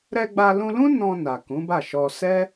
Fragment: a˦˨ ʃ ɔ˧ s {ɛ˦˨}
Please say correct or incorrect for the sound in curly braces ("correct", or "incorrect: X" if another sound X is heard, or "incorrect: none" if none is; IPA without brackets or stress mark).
incorrect: ɛ˦